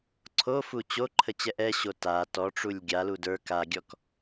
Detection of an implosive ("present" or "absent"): absent